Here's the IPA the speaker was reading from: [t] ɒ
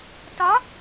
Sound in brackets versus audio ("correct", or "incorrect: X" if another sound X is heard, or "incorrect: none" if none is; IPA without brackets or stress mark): correct